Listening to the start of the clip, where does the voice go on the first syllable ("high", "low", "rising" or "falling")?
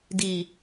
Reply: low